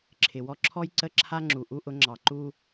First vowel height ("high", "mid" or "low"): high